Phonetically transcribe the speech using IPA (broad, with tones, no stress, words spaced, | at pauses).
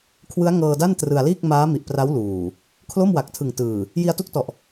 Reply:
kʰwɯ˦˥a̯ŋɤː˧da˥˩n trɯ˧a̯liː˥˩k̚ maː˦˥mi˨˩ʔpra˦˥w luː˨˩ | kʰlo˥˩mwa˨˩k̚tʰɯ˨˩ŋtɯː˨˩ | ji˧a̯tu˦˥k̚tɔ˨˩ʔ